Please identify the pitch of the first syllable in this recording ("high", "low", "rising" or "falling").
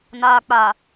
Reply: low